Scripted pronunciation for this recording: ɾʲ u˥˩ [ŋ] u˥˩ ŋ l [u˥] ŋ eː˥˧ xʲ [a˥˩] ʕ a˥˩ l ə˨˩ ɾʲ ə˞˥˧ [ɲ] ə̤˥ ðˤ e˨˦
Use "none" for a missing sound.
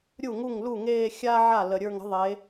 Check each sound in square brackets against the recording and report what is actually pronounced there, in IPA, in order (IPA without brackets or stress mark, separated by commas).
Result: ŋ, u˥˩, a˥, ŋ